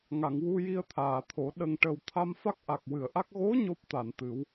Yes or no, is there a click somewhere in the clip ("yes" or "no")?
no